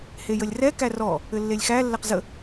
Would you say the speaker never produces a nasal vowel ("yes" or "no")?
yes